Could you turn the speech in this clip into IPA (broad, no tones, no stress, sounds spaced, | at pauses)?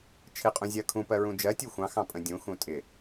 t͡ʃʰ ɪ qʼ ũ zʲ ɜ kʰ ũ p ɜ ɹ ũ d͡ʒ ɜ tʲ u xʷ ɑ̃ x ɑ̃ pʼ ə̃ dʲ ũ x ũ tʼ ɪ